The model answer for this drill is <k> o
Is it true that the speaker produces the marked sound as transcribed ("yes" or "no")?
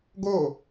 no